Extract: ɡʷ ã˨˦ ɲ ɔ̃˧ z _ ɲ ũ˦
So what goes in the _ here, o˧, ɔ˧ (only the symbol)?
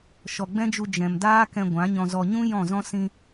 ɔ˧